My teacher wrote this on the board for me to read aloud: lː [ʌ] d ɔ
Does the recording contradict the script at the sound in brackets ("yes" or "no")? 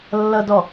no